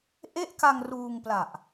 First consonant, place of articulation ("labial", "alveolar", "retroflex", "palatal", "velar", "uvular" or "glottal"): glottal